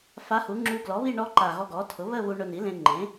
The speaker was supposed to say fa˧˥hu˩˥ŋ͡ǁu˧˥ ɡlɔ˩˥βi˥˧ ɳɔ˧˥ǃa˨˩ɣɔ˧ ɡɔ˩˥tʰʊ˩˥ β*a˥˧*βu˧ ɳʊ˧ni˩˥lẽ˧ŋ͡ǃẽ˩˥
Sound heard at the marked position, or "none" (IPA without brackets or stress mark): ə˥˧